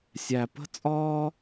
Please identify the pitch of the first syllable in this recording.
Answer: low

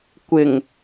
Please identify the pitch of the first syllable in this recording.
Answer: low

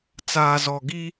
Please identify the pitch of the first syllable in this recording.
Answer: low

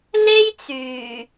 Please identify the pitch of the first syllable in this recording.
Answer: high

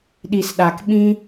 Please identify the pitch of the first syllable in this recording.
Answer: low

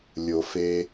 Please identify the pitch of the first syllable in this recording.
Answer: low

